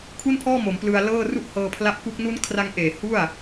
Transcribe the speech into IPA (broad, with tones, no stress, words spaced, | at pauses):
kʰu˥˩npʰɔː˥˩ mo˩˦mplɯ˧a̯ lɤː˥˩ ru˥˩ʔhɤː˧pʰla˦˥p̚ku˦˥k̚ nu˦˥n kʰra˦˥ŋʔeː˨˩ hu˥˩a̯